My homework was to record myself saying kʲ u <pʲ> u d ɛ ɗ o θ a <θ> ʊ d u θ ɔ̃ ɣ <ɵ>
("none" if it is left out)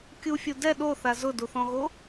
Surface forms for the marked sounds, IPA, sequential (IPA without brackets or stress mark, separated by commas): fʲ, z, o